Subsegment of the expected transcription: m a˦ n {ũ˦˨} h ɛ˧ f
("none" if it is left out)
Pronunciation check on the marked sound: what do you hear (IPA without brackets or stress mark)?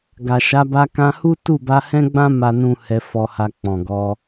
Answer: ũ˦